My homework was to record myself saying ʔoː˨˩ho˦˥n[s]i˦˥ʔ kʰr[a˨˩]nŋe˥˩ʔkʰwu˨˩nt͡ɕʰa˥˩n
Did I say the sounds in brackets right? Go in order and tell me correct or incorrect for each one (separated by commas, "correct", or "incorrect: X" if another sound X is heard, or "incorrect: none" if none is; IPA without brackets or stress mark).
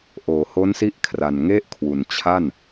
correct, correct